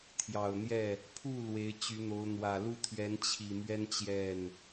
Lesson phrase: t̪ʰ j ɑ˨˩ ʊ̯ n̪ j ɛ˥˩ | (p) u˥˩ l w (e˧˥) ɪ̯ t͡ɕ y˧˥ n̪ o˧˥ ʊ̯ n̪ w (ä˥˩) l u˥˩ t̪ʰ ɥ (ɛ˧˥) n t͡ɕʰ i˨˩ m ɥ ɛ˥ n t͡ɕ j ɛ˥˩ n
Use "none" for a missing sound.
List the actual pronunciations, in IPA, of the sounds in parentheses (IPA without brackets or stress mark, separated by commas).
pʰ, e˧˥, ä˨˩, ɛ˧˥